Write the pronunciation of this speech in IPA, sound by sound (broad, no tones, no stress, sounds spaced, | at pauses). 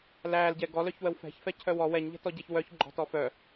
l æː l ɟ ɛ ɡ ɔ l œ ç w ə w f ɛ̤ ç f ɛ cʰ œ w ɔ w ɛ ɲ ʎ ɛ̤ t ɔ ɟ ɛ ç w œ ç ɡ͡ǃ ɔ̤ t ɔ f œ